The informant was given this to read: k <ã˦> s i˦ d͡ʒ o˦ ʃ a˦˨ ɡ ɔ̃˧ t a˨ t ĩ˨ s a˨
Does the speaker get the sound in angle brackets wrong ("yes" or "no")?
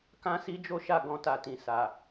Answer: no